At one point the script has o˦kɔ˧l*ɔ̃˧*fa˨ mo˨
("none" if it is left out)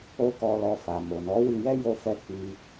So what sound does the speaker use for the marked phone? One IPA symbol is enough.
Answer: ɔ˧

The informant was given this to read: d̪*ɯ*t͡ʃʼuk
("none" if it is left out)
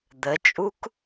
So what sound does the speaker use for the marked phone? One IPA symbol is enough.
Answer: ə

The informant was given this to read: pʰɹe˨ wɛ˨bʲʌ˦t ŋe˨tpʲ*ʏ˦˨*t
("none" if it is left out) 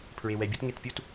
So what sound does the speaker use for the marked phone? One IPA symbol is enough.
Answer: u˦˨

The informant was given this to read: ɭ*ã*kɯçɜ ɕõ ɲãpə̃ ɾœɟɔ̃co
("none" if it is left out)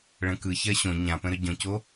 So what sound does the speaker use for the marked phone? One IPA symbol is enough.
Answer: ə̃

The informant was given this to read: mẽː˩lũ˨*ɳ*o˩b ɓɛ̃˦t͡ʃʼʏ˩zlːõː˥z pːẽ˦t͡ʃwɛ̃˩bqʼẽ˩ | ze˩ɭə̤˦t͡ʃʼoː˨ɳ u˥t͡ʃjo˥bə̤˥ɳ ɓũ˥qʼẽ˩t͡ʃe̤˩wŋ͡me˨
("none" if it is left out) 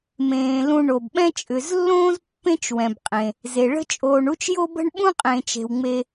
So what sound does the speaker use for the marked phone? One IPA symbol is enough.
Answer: ɳ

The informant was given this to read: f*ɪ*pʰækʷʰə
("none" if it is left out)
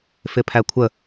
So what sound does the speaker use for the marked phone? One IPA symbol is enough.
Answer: ɪ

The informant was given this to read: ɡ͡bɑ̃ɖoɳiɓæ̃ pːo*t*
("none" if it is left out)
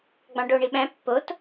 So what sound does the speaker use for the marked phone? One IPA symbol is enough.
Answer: t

